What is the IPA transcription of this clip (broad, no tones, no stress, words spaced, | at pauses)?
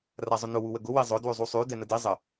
razˤʊnʊ wuwəɡʊ wizˤʊ dwʉzˤusˤʉ dɛnədi zˤə